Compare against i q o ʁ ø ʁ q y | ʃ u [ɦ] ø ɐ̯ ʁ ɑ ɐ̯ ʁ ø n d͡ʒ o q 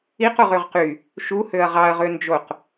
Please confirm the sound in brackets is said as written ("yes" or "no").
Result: no